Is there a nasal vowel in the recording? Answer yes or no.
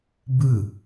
no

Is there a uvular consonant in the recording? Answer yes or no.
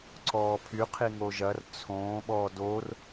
yes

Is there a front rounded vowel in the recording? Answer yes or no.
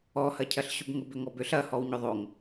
yes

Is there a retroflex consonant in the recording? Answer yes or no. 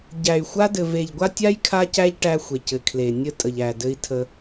yes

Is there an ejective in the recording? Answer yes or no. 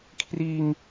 no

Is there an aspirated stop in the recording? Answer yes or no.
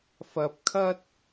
yes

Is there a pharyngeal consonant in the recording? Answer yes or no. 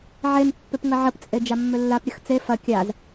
yes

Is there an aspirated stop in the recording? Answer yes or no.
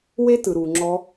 no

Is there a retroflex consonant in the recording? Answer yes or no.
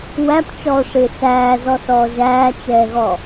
yes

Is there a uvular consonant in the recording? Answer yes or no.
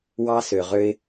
yes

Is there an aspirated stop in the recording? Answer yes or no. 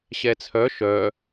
yes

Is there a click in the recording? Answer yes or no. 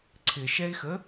yes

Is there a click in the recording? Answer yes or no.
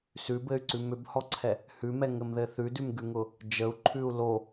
yes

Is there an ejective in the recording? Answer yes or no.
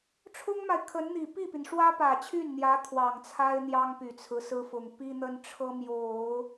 no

